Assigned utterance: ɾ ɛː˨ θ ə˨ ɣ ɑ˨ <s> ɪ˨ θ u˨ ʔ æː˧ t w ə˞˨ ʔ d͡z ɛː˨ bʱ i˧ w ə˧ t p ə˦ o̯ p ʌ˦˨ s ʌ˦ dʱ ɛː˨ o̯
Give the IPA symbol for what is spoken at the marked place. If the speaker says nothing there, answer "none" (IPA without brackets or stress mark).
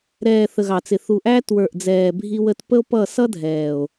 t͡s